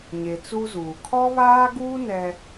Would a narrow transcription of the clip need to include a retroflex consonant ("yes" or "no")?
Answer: no